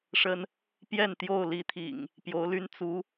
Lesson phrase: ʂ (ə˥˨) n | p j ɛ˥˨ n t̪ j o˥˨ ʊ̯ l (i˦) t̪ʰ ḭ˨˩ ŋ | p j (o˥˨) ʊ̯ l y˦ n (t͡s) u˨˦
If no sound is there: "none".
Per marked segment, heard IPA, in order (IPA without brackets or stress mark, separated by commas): ə˦, i˦, o˨˦, t͡s